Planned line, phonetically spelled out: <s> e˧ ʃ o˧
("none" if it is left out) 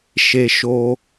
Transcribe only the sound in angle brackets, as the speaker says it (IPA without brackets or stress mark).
ʃ